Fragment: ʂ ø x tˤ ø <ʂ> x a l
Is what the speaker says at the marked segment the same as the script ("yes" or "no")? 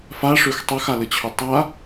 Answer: no